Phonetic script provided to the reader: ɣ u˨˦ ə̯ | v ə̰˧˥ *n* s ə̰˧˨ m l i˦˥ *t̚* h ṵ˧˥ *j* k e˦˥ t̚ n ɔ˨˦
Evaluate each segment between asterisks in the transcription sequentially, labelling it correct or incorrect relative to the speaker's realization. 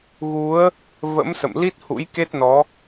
incorrect: m, correct, correct

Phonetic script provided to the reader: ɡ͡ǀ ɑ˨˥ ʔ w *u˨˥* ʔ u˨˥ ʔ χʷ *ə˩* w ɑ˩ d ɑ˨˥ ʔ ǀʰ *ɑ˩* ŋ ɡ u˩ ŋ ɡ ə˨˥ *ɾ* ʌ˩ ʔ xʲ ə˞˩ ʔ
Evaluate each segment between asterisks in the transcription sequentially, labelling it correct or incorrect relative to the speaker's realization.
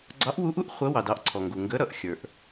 correct, incorrect: ə˨˥, incorrect: ɔ˩, correct

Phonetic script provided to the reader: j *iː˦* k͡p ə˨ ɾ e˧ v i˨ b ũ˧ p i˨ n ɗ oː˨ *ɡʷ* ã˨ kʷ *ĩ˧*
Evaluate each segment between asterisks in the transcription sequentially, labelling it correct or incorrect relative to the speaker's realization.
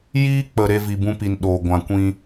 correct, correct, correct

